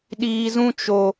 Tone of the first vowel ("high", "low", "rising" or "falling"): low